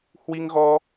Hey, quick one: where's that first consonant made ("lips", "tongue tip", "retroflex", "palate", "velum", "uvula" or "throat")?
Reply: throat